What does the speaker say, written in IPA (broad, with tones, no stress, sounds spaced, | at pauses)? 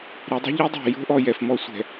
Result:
ɾ e˨˦ dˤ ɛ̤˦ ʎ i˦ dˤ o̤˨ j o̤˦ ʔ ɔ˨ j ɛ˨ f m ɔ˦ sʷ ɛ̤˨